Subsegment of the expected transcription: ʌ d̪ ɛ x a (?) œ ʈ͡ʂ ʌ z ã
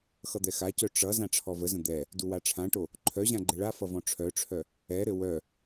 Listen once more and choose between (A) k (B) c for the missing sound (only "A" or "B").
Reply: B